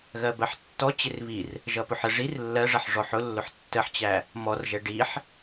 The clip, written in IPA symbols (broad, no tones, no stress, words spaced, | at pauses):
ɣɜbɜħtːɔ t͡ɕɪrβir | ʒʌpʊħə ʐir lːɜʐʌħ ʐɔħʊlːʊħ tːəħt͡ɕæ | mɔrʒɛ ɖiħ